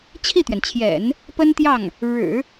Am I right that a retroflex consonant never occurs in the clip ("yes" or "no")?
no